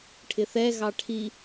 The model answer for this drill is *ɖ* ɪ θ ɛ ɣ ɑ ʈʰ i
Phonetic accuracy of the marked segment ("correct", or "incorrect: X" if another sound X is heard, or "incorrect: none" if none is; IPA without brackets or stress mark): incorrect: ʈʰ